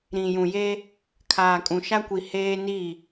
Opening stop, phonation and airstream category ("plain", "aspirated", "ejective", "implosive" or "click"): aspirated